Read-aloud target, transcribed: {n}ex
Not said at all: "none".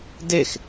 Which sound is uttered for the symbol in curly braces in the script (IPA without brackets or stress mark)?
d